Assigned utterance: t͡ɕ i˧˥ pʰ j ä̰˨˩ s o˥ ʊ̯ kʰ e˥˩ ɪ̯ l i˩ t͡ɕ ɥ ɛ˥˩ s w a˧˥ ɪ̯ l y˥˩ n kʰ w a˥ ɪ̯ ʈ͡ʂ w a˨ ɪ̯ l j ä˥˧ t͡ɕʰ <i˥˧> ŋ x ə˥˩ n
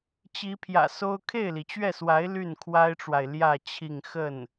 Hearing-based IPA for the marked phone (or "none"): i˥˧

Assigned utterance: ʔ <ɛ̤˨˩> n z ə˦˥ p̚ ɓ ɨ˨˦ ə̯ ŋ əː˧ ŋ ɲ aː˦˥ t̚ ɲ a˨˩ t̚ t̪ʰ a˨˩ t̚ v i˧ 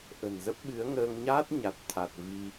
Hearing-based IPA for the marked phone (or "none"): ə̤˨˩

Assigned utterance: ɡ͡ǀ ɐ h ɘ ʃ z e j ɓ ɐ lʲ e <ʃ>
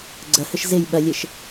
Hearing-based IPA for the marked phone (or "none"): ʃ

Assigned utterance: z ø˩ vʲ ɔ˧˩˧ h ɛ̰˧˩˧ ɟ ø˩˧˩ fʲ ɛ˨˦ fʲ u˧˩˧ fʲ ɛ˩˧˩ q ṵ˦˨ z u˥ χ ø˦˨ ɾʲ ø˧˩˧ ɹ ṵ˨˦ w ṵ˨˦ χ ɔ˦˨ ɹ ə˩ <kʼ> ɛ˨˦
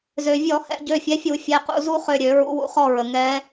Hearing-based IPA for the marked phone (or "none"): ŋ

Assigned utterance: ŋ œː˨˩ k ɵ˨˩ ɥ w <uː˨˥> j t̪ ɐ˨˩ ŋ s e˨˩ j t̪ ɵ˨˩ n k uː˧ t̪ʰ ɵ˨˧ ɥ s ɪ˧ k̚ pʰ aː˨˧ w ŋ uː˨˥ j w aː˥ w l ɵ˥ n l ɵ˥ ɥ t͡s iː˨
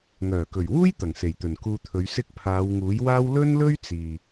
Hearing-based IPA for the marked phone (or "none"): uː˥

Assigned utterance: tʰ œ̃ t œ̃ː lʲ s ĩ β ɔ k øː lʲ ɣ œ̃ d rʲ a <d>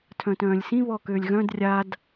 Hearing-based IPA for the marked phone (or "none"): d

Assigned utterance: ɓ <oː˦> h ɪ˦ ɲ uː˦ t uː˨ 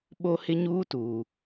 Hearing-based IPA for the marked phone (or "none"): o˦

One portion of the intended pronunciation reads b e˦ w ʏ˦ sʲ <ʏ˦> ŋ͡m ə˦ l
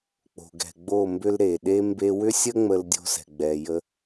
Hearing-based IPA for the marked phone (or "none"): ə˦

